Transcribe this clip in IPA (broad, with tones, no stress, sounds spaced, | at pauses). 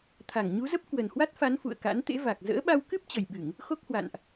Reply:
t̪ʰ a˧˩ ŋ ɲ u˨˦ z ə˦˥ p̚ k w ə˨˩ n h w a˦˥ t̚ f a˨˦ n f ṵ˧˨ ə̯ k a̰˧˥ n t̪ ḛ˧˥ v a˨˩ k̚ z ə̰ː˧˥ ɓ a˧ w k ɨ˦˥ p̚ t͡ɕ ə˨˩ j ɓ ɨ˧˩˨ ŋ | x o˦˥ k̚ h w a̰˧˨ n ʔ